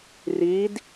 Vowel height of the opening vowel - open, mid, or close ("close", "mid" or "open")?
close